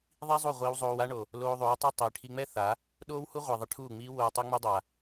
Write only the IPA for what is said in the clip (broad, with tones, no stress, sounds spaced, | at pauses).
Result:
ðˤ i˦ zˤ u˦˨ ʁʷ iː˧ w zˤ oː˧ w a˦ ɳ o˨ | l oː˧ ðˤ oː˨˦ tˤ ø˦ tˤ i˨ ʈʰ i˧ ŋ͡m ɛ˦ θ a˨˦ | ɗ oː˦ w h u˦ ʁʷ e˨ ðˤ e˧ ʈʰ uː˦˨ ŋ͡m iː˦ w oː˧ tˤ o˦ ŋ͡m ø˦ dˤ a˨